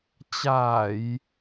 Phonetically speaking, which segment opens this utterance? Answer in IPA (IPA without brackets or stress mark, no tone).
t͡ɕ